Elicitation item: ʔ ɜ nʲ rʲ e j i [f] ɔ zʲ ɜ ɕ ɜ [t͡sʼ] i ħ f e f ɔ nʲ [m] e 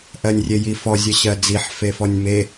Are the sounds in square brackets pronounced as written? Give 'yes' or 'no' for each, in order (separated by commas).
yes, no, yes